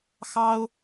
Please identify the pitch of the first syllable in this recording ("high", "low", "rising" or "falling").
high